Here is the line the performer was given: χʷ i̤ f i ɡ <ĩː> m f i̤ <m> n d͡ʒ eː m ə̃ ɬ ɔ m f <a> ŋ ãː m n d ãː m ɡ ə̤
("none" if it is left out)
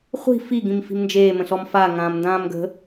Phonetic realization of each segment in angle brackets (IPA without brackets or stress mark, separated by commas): ĩ, m, a